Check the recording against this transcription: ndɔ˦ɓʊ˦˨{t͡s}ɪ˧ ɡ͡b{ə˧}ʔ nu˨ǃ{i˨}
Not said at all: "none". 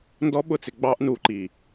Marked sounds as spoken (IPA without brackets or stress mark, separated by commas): t͡s, ɑ˧, i˨